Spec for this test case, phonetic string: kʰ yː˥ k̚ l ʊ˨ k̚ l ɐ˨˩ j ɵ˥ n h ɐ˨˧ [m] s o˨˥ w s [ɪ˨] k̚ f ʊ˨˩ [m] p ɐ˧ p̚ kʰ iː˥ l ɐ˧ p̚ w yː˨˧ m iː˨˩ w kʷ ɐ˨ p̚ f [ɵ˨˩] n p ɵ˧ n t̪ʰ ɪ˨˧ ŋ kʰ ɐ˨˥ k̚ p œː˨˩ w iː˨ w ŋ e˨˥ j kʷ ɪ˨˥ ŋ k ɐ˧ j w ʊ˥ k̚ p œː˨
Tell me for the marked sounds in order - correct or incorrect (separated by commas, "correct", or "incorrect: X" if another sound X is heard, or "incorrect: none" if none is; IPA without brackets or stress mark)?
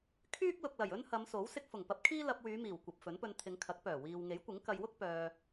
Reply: correct, incorrect: ɪ˧, incorrect: ŋ, incorrect: ɵ˨˥